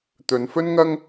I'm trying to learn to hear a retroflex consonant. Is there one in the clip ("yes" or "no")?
no